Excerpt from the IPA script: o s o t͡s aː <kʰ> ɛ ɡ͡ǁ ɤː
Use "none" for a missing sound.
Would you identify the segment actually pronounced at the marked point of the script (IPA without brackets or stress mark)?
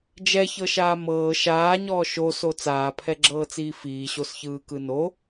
pʰ